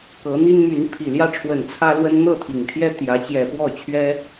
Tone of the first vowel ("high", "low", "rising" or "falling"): rising